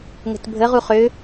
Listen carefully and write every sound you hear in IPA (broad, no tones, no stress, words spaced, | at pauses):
ŋə̤tbʱə ʁuχø